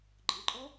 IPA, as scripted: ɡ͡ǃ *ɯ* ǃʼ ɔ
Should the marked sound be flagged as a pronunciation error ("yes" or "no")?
no